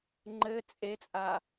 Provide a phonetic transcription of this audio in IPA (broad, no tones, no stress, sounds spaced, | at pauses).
ŋ͡ǃ ɘ t͡sʼ e t͡sʼ a